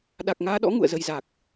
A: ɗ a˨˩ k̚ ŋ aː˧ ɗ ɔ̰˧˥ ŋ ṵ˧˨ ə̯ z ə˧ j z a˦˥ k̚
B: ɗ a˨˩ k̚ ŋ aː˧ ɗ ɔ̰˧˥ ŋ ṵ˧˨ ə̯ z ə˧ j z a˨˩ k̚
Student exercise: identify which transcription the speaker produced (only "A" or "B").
B